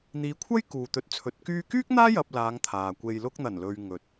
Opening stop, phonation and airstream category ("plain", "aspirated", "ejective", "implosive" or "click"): aspirated